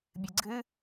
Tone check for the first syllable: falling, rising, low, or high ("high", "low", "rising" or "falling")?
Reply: high